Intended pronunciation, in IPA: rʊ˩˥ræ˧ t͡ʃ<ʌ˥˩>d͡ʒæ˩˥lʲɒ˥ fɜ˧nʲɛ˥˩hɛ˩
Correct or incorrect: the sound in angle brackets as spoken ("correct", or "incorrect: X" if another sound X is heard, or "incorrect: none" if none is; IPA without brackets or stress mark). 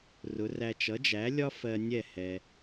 incorrect: ʌ˩˥